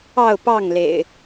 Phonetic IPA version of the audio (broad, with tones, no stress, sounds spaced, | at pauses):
ɑ˥˨ ʊ̯ p ɑ˥˨ ŋ l ḛ˨˩ ɪ̯